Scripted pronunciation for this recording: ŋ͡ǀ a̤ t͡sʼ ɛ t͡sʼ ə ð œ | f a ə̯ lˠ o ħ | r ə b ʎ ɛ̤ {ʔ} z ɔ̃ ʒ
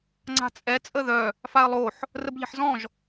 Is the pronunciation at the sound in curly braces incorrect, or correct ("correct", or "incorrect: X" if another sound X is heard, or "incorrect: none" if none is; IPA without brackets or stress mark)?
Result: incorrect: ħ